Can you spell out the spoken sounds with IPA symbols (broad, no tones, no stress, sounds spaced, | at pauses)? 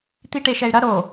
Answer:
t̪ i ʈ e ʃ ɛ y̯ ɾ ɐ ɾ o